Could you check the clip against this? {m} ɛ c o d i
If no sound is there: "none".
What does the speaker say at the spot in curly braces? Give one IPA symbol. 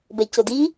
b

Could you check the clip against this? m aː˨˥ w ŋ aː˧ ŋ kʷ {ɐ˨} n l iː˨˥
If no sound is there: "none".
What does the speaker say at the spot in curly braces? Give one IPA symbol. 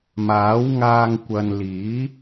ɐ˨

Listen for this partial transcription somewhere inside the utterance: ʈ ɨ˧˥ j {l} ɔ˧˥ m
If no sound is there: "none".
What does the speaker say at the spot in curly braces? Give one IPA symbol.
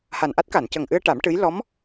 l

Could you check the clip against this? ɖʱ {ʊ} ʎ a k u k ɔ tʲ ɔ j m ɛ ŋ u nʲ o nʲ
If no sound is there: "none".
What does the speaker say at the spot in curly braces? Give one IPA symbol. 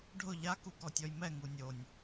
ʊ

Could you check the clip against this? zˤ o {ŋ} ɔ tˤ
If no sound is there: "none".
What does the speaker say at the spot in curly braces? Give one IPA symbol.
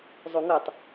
ŋ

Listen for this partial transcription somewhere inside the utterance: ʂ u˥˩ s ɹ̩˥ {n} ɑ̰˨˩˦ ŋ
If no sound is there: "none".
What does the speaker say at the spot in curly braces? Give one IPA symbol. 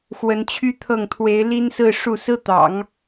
t̪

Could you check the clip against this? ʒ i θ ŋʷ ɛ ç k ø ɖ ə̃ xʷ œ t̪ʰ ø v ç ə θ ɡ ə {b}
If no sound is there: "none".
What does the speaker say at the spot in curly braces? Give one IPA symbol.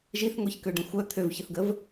v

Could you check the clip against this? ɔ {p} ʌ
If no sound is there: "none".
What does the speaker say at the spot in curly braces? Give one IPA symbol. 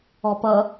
p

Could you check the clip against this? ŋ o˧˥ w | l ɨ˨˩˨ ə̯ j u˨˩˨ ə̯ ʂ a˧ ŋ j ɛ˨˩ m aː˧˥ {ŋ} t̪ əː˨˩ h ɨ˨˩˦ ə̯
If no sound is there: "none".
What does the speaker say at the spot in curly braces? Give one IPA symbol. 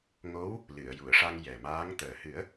ŋ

